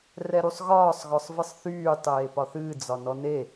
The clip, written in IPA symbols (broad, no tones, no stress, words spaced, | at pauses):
rɛɾusˤɣɒːsˤ ɣɔsˤvɨsˤθyː tˤeːpɒθɨː d͡zɒnɔne